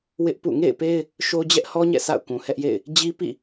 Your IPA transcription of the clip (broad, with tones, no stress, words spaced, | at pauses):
wɪ˦ʔpṵ˦˨ ŋḛ˦˨ɪ̯pe˦ɪ̯ | ʃo˦d͡ʑɛ˦ʔhɔ˦ɲɛ̰˦˨ sa̰˦˨ʊ̯kũ˨hɛ˦ʔjḛ˦˨ɪ̯ | d͡ʑi˦ pḭ˦˨